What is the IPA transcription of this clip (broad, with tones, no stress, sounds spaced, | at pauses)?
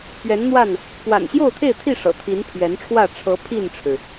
p ɥ ɛ˨˦ n n̪ w a˥˨ n | p w a̰˨˩ n ɕ j o˥˨ ʊ̯ t̪ʰ e˥˨ ɪ̯ t̪ʰ i˥˨ ʂ ɤ̰˨˩ t̪ʰ i˨˦ n pʰ ɥ ɛ˨˦ n ʈ͡ʂʰ w ä˥˨ ʈ͡ʂʰ ɤ˨˦ pʰ i˥˨ n ʈ͡ʂʰ ɻ̩˩